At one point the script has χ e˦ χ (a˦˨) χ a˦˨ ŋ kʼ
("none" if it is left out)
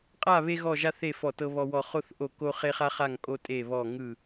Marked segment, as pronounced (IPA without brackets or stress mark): a˦